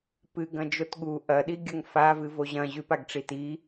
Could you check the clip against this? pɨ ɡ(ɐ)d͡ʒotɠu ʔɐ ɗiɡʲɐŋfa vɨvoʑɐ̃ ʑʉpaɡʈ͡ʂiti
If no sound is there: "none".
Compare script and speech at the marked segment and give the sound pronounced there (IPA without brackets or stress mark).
ɐ̃